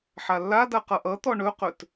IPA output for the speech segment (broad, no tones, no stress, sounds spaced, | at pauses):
ħ a lː a d a q ʌ ʔ ʌ t̪ ɔ ɳ ɵ q ɵ t